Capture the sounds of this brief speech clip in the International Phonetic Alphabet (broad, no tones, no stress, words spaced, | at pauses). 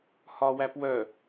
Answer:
hɒwæp wœ